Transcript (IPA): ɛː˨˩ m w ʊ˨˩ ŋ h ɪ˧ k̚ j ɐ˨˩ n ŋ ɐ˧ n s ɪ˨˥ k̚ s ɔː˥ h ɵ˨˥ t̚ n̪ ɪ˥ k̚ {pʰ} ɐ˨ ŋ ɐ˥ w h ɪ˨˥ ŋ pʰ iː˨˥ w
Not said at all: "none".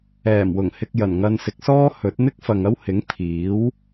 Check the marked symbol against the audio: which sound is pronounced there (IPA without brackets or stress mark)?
f